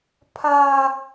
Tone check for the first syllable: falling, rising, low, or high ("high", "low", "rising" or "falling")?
high